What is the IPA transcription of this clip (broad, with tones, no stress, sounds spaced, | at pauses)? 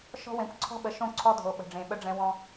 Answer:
ʃ ɔ̤˦ w ẽ˨˦ kʷ ǀʰ ɔ̤˦ ɓ ə˨ ʃ õ˦˨ ǀʰ ɔ˦ dʱ o˨ ɓ ə̤˨ ɖ͡ʐ ẽ˨ ɓ ə˦ ɖ͡ʐ ɛ̃˦ w ɔ̃˦